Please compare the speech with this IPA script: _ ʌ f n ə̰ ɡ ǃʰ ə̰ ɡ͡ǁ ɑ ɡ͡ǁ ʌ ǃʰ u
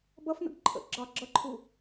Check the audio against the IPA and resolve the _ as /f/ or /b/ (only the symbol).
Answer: b